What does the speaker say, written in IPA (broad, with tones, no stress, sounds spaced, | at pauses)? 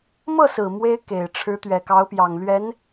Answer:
m ɤ˥˩ s ɹ̩˨˩ m w e˥ ɪ̯ k e˨˩ ɪ̯ ʈ͡ʂʰ ɻ̩˧˥ t̪ ɥ ɛ˨˩ k ɑ˧˥ ʊ̯ p j ɑ˨˩ ŋ l ɥ ɛ˧˥ n